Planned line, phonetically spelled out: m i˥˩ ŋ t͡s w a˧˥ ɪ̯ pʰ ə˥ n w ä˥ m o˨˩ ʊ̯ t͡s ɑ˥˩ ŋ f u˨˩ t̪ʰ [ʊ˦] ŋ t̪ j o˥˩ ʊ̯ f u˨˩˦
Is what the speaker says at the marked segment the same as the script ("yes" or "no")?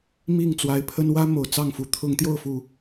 no